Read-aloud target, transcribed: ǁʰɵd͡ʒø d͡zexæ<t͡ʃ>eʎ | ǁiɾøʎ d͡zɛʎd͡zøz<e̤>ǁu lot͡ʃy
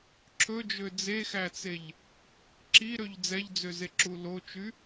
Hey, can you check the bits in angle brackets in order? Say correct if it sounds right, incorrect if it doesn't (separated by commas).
incorrect, incorrect